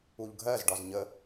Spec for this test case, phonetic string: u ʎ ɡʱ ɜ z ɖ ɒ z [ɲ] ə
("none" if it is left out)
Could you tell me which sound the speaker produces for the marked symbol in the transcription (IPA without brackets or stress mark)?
ɲ